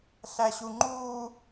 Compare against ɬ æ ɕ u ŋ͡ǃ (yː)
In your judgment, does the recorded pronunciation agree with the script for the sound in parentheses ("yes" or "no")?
no